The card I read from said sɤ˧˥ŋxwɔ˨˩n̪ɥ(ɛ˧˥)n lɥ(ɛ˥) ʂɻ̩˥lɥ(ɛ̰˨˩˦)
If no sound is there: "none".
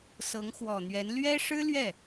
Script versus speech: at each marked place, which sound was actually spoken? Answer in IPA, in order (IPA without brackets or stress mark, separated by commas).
ɛ˧˥, ɛ˥, ɛ˥˩